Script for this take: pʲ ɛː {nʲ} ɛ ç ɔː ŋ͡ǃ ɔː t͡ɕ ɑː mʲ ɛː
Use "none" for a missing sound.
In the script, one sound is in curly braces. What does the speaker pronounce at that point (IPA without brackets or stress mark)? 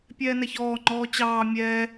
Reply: n